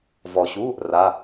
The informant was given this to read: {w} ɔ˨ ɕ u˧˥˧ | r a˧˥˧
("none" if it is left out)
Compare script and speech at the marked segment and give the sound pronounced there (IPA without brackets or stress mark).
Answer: v